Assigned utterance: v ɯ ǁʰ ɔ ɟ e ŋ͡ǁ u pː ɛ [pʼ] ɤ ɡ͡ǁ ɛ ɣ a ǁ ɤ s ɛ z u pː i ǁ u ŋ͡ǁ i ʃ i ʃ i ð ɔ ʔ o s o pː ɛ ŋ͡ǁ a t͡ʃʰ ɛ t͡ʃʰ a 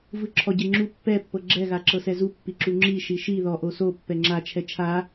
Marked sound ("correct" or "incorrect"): incorrect